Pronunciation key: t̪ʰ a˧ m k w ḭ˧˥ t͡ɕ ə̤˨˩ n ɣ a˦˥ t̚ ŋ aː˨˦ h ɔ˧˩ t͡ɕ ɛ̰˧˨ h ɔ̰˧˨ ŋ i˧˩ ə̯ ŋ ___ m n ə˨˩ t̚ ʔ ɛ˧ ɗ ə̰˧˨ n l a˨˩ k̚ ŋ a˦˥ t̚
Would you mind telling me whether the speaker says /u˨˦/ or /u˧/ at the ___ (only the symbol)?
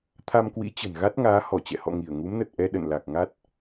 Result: u˨˦